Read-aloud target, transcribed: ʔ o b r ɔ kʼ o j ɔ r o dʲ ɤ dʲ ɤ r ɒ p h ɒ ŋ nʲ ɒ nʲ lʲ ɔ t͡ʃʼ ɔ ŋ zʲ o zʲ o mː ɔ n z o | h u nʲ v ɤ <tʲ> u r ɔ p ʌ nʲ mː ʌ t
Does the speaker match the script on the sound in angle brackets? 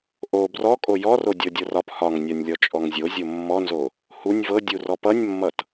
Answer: no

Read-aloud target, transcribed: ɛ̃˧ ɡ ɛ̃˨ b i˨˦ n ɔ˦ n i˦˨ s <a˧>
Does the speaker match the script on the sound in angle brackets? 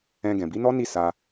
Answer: yes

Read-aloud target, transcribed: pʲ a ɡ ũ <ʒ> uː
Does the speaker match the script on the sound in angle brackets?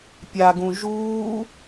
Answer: yes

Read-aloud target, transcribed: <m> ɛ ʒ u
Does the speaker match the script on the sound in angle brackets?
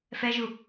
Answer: no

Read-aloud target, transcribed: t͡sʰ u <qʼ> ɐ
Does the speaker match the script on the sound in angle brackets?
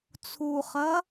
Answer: no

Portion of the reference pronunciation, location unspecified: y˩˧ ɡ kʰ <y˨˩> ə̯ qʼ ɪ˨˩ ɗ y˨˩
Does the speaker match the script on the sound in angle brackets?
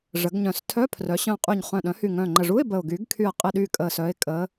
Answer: yes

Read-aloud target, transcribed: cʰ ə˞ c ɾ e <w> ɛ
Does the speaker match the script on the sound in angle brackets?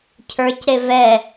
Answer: no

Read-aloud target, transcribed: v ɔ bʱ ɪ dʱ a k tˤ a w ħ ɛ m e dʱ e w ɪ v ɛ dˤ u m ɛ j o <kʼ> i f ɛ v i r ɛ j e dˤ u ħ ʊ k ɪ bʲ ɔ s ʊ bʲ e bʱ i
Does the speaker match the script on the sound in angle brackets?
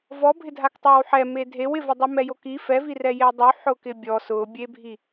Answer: no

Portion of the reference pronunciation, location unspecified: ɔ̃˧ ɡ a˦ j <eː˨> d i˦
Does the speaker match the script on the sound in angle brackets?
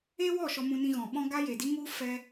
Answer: no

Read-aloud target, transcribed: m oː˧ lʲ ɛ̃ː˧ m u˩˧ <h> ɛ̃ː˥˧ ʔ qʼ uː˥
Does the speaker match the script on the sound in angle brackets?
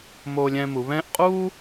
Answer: no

